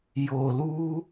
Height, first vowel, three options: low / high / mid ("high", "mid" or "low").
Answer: mid